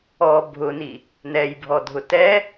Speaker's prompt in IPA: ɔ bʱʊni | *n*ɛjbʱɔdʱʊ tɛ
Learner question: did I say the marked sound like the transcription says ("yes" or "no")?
yes